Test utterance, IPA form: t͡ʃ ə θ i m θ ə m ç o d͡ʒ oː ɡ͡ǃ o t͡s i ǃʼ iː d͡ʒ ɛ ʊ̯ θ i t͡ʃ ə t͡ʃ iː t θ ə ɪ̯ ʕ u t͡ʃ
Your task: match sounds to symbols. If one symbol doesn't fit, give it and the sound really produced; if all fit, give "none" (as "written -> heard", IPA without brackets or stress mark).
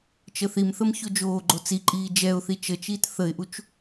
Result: ʕ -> ʔ